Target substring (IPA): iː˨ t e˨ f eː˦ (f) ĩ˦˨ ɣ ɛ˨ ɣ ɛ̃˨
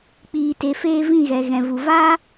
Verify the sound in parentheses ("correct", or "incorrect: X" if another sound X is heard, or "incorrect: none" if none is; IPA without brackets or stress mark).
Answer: incorrect: v